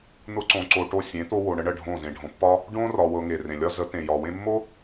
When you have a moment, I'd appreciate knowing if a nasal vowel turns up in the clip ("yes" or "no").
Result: yes